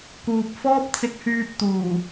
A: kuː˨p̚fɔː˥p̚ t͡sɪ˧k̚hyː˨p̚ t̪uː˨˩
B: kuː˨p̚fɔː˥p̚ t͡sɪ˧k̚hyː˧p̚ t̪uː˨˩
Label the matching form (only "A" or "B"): B